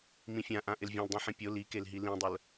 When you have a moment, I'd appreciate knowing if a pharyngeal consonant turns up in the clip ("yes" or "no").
yes